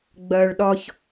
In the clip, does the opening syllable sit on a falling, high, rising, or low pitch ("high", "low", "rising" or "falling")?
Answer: low